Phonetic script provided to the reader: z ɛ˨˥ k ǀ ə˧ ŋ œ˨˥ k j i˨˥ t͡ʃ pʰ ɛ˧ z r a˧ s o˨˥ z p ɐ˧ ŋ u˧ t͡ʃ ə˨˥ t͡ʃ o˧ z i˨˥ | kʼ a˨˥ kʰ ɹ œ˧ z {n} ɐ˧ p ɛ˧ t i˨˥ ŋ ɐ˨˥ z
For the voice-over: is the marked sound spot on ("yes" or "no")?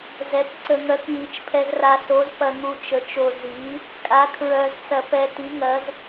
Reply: no